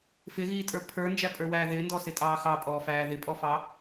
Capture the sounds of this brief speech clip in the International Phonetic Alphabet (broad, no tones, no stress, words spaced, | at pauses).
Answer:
fɪɣiːtʼə˞ pʰə˞nd͡ʒæpʼə˞wæː ðɪːndɔsɪtʼɑː xɑpʼɔːfæː ðɪpʼɔfɑ